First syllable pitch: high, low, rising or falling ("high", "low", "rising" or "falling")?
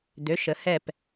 rising